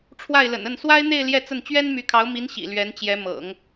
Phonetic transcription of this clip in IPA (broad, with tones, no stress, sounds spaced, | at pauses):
ʈ͡ʂʰ w a˥˩ ɪ̯ l ə̰˨˩ n ə˥˩ n s w a˥ ɪ̯ n̪ e˥˧ ɪ̯ l j ɛ˥˧ t͡s ə˥˩ n t͡ɕ ɥ ɛ˥ n m y˧˥ kʰ ɑ˧˥ ʊ̯ m i˧˥ n ɕ ḭ˨˩ l ɥ ɛ˧˥ n t͡ɕ j ɛ˧˥ m ɤ̰˨˩˦ ŋ